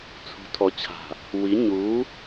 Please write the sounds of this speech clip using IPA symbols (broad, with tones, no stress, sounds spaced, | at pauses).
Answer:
t͡sʰ ṳ˨˦ tʰ ɔ˨ t͡ɕʰ a̤˨ | w i˨˦ ɲ u˨˦